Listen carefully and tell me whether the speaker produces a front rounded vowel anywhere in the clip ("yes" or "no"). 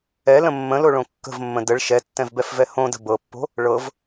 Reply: no